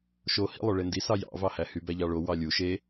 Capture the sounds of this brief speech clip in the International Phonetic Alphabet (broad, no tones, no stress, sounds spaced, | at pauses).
ʃ o h ḭ lˠ o ɭ e n d i s ɑ j ɑ̰ v ɑ h æ h y b æ ʎ ɑ ɭ o w ɑ lʲ u ʃ e